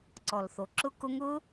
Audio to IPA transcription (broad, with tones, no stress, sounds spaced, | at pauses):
ǀ ɔ˨˩ l θ o˨˩ ǁ ʊ˦˥ k ʊ˦˥ ŋ ʊ˦˥